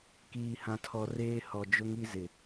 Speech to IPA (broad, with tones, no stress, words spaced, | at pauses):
kiː˨hã˨tʰɔ˨reː˦ hɔ˨d͡ʒʊ˦ŋi˦ zɪ˨